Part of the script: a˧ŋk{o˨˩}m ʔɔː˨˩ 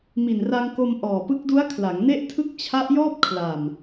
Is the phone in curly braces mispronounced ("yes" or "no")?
yes